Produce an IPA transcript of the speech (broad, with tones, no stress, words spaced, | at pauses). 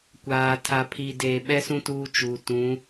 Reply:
kʷaː˨ tʰa˨pʰi˨deː˨ ɓɛ˦sũ˦ tuː˦t͡ʃuː˨ tũ˨˦